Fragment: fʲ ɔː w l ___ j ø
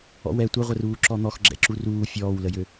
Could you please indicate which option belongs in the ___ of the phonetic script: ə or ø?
ə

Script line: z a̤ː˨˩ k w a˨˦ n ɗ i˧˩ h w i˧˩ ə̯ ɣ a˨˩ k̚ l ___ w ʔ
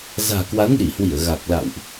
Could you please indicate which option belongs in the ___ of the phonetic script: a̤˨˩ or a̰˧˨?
a̰˧˨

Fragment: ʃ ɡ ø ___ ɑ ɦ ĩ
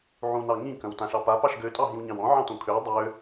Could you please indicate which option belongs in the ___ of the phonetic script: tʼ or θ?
tʼ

